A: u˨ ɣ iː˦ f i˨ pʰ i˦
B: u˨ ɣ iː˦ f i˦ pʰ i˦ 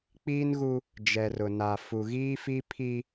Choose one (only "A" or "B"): B